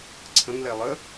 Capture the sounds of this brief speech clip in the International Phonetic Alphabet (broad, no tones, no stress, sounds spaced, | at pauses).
ǀʰ ə̃ ŋ l ɛ lˠ ə